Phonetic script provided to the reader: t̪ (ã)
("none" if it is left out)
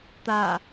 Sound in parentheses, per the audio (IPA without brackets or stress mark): a